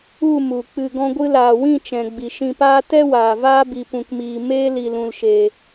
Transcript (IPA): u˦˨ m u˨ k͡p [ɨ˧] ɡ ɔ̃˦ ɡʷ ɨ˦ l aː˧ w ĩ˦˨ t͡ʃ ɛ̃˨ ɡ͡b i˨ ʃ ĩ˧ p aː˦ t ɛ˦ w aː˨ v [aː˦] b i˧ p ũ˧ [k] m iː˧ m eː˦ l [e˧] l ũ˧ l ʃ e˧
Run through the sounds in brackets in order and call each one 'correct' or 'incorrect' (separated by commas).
correct, correct, correct, incorrect